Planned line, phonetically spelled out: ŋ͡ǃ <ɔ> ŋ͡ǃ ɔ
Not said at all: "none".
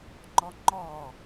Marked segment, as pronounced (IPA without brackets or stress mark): ɔ